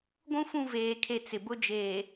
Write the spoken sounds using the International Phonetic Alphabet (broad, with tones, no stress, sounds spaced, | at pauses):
ɡʷ ũ˦ f ũ˦˨ v eː˨ kʰ e˨ t͡s ɪ˨ b ʊ˦ d͡ʒ eː˨